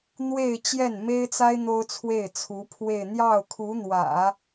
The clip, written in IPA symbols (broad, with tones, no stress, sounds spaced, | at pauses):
n̪ w e˥˧ ɪ̯ t͡ɕ j ɛ˥˩ n m e˥ ɪ̯ t͡s a˥ ɪ̯ n̪ o˥ ʊ̯ t͡sʰ w e˥˩ ɪ̯ t͡sʰ u˧˥ pʰ w e˥˧ ɪ̯ n̪ j ɑ˥˩ ʊ̯ kʰ u˧˥ n̪ w ä̰˨˩˦